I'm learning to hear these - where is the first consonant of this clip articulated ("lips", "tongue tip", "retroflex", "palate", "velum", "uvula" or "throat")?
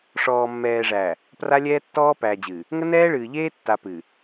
retroflex